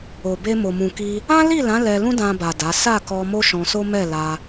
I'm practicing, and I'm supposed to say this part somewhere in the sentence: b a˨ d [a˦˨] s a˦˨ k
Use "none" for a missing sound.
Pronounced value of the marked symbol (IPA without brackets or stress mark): a˨˦